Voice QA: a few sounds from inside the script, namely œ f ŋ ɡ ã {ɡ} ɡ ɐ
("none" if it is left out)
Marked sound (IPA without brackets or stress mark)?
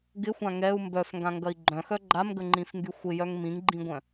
ŋ